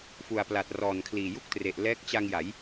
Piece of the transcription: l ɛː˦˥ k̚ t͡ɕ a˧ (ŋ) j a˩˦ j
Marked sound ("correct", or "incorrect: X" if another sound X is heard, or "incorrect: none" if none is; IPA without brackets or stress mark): correct